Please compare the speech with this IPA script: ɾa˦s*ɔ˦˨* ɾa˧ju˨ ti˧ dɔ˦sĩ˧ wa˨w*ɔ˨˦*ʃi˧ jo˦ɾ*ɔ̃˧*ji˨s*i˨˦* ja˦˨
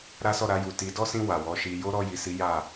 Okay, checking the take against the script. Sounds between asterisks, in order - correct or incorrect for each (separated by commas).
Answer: correct, correct, incorrect, correct